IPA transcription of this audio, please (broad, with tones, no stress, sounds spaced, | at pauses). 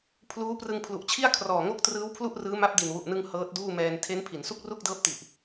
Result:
pʰ l uː˦˥ p r ɯ˧ ŋ pʰ l u˨˩ ʔ t͡ɕʰ i˥˩ a̯ kʰ r ɔː˨˩ ŋ o˥˩ k̚ t r ɯː˦˥ w pʰ l u˥˩ ʔ r ɯː˦˥ m a˦˥ p̚ d i˨˩ n w u˨˩ ʔ n ɯ˧ ŋ h ɤː˦˥ t̚ d uː˥˩ m ɛː˧ n tʰ e˦˥ n pʰ i˩˦ n s u˥˩ k̚ r u˥˩ k̚ d ɤː˦˥ p̚ t i˨˩ ʔ